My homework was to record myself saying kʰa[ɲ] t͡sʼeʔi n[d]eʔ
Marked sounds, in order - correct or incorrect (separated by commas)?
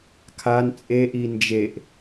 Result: incorrect, incorrect